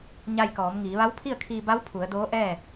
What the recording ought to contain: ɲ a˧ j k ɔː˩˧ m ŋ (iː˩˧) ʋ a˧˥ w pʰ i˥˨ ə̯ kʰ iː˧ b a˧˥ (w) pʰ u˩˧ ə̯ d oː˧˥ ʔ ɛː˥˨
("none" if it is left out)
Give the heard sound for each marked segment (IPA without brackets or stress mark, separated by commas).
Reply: iː˩˧, w